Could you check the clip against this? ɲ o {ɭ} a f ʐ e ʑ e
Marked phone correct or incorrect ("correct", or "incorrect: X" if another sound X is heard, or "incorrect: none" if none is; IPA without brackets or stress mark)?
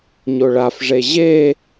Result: correct